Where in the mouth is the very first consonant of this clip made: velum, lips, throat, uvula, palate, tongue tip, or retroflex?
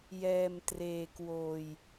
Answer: palate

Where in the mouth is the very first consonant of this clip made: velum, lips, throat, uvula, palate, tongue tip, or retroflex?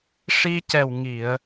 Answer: retroflex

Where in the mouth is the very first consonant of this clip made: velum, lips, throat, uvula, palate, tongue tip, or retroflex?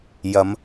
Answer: palate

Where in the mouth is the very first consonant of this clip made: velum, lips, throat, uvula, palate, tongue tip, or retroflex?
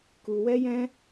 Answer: velum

